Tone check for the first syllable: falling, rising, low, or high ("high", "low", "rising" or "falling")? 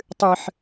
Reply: high